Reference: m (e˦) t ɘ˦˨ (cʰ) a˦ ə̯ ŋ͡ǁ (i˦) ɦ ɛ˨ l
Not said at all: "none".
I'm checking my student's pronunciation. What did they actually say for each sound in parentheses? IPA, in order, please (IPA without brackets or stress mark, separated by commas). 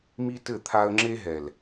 i˦, t̪ʰ, e˦